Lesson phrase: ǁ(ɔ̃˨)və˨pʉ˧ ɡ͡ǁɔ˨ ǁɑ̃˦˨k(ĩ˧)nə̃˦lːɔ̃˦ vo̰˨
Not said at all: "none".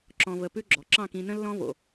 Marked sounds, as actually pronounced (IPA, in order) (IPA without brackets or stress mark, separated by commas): ɔ̃˨, ĩ˧